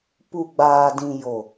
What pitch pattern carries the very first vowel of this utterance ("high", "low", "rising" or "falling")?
low